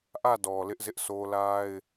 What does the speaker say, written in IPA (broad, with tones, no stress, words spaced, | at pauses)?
ʔä˦˨dɔ˨ lɪ˦ʔzɪ˦ʔso˦ la˦ɪ̯